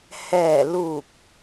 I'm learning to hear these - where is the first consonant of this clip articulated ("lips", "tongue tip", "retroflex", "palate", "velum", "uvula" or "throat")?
throat